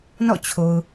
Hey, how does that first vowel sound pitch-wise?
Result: falling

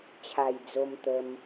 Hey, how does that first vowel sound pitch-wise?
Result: low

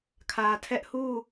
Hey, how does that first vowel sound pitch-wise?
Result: low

